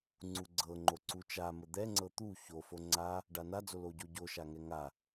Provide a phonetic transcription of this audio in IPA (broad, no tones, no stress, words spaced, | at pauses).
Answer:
ŋ͡ǀuɡ͡ǀɤ ŋ͡ǃoǀut͡ʃamə d̪ɛŋ͡ǀɤ t̪u ço foŋ͡ǀa | ɖanad͡zo loɟoɟo ʃaŋɛŋa